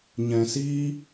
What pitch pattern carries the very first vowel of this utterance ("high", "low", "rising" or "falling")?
low